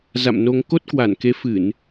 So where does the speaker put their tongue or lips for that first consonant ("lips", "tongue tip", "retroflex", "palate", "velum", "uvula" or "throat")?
tongue tip